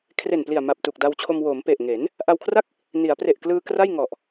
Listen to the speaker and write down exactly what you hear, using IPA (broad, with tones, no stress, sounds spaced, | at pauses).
kʰ r e˨˩ n p l i˨˩ a̯ m a˨˩ p̚ t uː˨˩ k̚ d a˧ w t͡ɕʰ o˧ m w o˩˦ m p e˨˩ ʔ ŋ e˩˦ n | ʔ a˧ w kʰ r a˥˩ k̚ | n i˩˦ a̯ p r e˨˩ ʔ k l ɯː˧ k r a˥˩ j ŋ ɔ˨˩ ʔ